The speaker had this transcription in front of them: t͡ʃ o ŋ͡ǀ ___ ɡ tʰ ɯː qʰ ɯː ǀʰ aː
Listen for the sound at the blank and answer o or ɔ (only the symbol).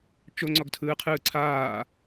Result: ɔ